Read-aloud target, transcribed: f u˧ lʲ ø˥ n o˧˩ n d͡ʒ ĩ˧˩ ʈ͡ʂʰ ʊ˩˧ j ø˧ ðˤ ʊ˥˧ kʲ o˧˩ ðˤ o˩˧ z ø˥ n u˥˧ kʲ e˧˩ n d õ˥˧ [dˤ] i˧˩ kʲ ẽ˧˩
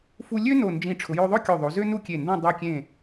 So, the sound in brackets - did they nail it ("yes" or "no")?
yes